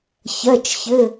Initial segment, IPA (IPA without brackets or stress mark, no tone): ç